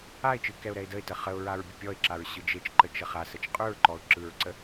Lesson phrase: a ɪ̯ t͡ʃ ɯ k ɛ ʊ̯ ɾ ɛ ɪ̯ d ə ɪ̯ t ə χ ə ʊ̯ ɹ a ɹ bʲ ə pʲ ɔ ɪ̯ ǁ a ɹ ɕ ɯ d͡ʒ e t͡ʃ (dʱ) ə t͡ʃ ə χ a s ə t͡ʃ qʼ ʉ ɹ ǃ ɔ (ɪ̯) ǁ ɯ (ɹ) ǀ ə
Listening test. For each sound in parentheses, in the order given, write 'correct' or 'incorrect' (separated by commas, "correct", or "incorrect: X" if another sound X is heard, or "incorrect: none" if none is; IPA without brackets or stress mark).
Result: incorrect: ǃ, incorrect: ʊ̯, correct